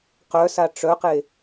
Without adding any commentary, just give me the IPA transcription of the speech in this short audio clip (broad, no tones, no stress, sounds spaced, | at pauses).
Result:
q œ s a ʈ͡ʂ œ q e